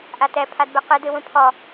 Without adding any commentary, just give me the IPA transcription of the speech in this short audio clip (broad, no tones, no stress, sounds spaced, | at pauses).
ʔ a t ɛ pʰ a d b ɛ q ɨ d ɨ w ũ pʰ ɔ